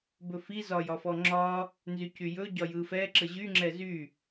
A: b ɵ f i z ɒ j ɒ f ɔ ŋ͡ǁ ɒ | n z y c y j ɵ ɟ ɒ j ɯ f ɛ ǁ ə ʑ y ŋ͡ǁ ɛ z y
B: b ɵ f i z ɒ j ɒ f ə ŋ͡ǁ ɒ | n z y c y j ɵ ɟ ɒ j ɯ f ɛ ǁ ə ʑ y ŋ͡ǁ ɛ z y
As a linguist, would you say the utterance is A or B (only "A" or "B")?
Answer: A